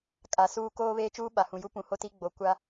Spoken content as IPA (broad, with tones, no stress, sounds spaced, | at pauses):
kʼ a˨ s uː˦ k oː˦ β eː˦ t͡ʃ uː˦ ɓ a˨ h ũ˨ j u˦ p ũ˨ h o˦ t i˦ ɡ͡b o˨˦ kʷ a˦